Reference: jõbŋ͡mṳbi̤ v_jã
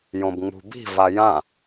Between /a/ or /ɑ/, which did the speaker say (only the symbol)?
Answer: a